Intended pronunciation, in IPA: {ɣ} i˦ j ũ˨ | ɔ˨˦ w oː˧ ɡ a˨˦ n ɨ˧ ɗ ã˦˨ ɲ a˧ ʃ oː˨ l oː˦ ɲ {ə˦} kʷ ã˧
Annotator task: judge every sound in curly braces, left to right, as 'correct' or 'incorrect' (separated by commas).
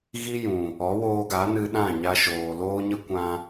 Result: correct, correct